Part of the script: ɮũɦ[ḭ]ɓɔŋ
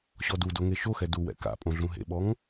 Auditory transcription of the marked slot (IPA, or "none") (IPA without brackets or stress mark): ḛ